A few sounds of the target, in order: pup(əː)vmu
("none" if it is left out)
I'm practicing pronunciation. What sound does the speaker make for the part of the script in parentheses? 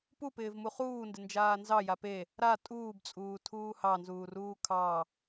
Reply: ɪː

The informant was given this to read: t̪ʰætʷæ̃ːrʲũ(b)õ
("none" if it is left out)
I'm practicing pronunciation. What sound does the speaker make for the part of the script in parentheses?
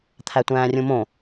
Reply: m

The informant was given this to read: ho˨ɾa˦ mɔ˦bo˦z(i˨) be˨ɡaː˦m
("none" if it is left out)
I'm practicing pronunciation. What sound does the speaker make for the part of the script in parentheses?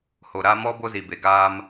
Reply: i˨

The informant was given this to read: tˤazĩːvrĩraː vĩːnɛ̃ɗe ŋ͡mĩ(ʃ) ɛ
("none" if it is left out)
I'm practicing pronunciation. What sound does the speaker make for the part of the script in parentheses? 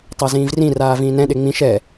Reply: ʃ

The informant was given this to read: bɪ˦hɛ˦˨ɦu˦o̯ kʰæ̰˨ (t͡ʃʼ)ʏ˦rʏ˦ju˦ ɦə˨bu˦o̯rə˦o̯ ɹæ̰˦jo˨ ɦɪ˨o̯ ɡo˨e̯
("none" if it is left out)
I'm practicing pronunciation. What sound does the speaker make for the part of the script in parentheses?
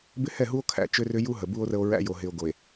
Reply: t͡ʃ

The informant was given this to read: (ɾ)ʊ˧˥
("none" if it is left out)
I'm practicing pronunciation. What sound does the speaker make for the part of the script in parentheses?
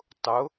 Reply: tˤ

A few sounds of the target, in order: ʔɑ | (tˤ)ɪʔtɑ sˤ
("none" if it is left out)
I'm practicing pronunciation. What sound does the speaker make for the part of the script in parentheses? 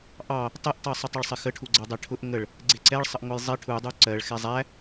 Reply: tˤ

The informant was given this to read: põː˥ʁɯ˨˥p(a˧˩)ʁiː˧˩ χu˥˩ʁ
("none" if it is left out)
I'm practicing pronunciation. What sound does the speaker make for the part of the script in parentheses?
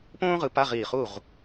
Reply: a˧˥˧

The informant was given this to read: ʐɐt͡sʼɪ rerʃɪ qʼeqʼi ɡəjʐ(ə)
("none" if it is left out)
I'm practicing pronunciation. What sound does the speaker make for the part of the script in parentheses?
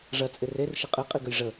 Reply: ə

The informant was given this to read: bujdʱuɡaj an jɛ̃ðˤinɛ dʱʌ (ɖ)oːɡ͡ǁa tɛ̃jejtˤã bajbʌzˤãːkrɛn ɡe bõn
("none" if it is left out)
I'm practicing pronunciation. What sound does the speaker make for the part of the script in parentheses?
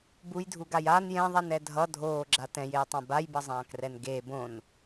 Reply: dʱ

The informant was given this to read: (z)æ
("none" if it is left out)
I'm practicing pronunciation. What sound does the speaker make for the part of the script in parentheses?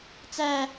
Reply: t͡s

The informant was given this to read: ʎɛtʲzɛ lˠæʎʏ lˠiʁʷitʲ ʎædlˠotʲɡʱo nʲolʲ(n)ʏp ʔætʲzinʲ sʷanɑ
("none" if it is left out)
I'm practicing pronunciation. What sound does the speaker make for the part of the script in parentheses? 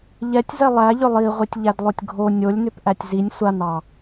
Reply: n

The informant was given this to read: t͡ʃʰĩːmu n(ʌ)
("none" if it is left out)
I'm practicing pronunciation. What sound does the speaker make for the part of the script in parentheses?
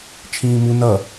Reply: ʌ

